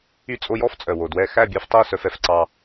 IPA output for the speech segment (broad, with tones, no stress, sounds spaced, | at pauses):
y˧ t͡sʼ o˧ j ɔ˦ f t͡sʼ œ˨ w o˨ d w ɛ˧ x æ˦˨ bʲ ɛ˧ f tˤ o˦˨ s œ˧ f ɛ˧ f ǀ ɑ˧